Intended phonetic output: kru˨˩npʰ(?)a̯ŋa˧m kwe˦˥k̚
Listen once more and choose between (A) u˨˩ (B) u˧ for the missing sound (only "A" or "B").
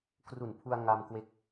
B